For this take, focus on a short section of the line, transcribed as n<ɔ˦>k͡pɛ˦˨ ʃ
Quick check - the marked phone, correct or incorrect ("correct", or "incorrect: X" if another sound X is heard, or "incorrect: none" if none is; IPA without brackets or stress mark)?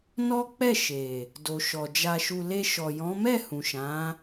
correct